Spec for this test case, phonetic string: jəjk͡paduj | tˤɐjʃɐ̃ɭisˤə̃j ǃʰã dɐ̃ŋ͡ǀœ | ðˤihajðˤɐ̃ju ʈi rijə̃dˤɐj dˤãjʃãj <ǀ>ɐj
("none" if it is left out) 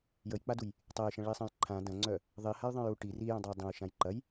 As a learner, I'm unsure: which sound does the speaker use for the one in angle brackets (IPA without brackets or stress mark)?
ǃ